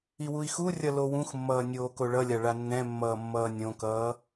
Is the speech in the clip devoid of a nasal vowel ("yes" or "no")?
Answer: no